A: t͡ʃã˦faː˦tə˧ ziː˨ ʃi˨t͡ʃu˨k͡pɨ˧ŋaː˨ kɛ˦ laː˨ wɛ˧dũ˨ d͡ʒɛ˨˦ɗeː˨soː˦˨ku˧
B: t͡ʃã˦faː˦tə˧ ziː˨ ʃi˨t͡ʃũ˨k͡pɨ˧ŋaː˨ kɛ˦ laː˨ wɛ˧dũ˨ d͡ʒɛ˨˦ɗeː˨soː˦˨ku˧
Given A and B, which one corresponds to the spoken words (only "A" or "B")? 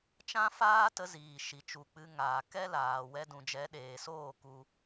A